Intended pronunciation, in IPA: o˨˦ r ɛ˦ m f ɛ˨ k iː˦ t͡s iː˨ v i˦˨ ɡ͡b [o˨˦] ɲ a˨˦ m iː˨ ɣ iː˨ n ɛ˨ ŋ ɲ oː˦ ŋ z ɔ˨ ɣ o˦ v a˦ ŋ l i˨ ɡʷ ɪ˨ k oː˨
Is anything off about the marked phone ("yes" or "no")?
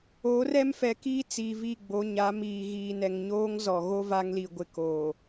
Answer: no